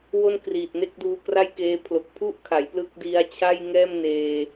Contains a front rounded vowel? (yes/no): no